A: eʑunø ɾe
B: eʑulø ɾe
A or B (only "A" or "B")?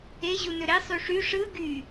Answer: A